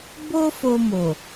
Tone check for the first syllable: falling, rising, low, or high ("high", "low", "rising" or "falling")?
high